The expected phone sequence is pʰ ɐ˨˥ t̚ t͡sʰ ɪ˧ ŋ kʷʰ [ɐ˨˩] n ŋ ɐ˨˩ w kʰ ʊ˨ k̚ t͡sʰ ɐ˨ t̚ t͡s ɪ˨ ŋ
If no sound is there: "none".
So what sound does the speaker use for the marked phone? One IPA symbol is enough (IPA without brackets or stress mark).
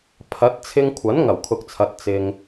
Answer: ɐ˨˥